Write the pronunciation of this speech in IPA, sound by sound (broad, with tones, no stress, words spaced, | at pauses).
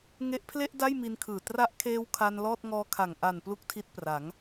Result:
ŋe˦˥ʔpʰle˥˩ʔ da˥˩jmi˧nkʰɯː˨˩ tra˦˥ʔkʰeː˦˥w kʰa˧n lɔː˥˩t̚ŋɔː˦˥kʰa˨˩ŋ ʔa˨˩n plu˥˩k̚tʰi˦˥t̚pra˩˦ŋ